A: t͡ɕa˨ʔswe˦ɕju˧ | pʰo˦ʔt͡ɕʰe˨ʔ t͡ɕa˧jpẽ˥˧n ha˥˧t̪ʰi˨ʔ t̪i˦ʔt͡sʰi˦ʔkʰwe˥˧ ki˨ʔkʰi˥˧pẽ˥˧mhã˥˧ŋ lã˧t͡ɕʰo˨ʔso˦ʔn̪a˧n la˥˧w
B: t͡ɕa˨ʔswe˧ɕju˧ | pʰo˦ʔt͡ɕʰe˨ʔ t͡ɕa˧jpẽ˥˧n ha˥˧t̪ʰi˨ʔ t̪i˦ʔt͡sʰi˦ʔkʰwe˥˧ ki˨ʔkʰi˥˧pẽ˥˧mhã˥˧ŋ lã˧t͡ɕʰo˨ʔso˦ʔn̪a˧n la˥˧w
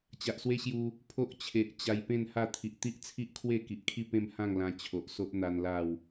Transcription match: A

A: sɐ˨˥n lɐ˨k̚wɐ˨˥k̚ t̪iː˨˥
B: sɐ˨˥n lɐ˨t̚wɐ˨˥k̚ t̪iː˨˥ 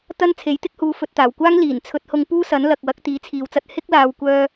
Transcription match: A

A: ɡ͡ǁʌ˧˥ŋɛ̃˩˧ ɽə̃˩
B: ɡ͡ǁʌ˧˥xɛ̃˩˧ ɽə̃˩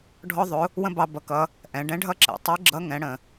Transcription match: A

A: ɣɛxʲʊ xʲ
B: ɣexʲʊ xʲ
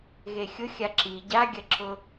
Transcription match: B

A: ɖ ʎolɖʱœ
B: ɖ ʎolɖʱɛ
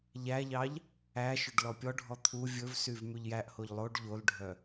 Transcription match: A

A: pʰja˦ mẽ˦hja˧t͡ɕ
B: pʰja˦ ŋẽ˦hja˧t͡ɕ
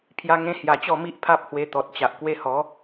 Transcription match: B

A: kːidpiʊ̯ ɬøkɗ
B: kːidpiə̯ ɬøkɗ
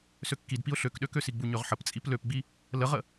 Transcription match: A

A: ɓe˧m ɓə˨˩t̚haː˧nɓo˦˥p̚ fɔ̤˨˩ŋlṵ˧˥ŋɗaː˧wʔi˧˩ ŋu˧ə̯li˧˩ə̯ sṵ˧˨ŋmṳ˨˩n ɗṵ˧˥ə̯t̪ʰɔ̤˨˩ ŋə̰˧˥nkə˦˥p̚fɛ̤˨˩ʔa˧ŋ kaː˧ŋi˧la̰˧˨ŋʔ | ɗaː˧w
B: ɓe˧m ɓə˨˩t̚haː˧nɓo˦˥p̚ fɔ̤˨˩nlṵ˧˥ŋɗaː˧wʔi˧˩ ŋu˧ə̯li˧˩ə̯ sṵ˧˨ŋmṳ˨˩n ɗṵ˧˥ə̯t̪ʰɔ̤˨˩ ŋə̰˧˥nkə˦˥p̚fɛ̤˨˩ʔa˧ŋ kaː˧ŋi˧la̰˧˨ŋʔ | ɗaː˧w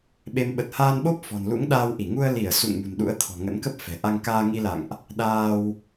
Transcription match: B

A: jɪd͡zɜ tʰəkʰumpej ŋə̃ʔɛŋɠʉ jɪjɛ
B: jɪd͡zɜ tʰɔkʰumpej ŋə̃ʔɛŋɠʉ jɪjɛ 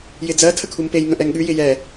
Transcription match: A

